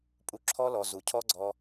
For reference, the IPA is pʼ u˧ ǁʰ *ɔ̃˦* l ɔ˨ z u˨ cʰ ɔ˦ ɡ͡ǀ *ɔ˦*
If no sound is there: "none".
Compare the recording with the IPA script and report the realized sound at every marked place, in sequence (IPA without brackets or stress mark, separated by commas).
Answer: ɔ˦, ɔ˦